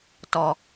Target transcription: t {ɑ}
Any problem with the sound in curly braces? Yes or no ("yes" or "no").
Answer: yes